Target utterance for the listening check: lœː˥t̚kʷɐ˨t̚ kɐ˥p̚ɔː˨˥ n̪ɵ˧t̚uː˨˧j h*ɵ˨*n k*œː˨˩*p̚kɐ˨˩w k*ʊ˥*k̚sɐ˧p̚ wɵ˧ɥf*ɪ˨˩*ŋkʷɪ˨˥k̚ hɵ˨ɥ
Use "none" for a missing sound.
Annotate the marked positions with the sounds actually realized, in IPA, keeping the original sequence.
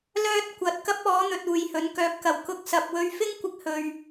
ɵ˨˥, œː˨˥, ʊ˥, ɪ˥

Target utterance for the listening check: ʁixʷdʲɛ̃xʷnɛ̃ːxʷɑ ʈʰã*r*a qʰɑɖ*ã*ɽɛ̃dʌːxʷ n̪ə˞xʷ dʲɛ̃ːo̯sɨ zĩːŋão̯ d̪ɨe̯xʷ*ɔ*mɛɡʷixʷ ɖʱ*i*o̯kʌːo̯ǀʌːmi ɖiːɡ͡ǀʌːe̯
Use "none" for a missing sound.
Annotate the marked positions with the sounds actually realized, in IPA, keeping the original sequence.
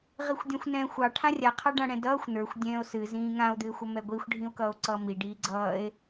rʲ, ã, ʌ, ĩ

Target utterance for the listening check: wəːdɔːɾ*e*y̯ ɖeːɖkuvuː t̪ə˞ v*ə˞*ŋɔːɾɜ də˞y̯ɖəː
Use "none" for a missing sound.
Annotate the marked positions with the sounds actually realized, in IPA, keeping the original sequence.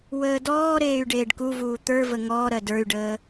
eː, ə

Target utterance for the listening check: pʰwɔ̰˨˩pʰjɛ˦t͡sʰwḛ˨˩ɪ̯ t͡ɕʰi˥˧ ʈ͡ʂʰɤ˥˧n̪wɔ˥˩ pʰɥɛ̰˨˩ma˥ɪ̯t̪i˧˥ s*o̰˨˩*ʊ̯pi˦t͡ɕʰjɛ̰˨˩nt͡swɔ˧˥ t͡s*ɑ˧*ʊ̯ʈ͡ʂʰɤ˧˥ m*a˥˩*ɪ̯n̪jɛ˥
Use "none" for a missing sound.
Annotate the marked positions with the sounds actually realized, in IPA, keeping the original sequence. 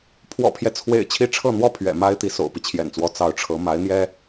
o̰˨˩, ɑ˧˥, a˧˥

